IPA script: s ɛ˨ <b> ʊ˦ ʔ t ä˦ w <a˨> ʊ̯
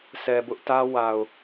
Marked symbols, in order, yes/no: yes, yes

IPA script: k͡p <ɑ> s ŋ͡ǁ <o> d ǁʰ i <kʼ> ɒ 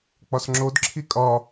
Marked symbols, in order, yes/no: no, yes, yes

